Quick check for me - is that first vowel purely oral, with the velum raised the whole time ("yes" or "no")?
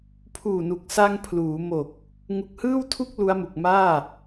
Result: yes